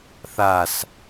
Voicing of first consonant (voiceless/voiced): voiceless